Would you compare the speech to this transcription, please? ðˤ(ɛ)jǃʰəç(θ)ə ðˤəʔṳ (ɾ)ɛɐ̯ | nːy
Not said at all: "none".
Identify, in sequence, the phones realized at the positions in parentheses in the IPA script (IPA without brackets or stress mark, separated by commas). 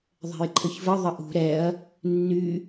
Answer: ɛ̤, v, ɾ